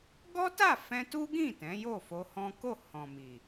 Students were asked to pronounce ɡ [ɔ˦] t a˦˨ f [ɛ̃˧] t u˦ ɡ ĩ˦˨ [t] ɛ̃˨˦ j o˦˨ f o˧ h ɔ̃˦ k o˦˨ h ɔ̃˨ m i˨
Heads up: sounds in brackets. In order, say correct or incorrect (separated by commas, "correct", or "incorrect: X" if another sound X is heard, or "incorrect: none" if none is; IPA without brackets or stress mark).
correct, correct, correct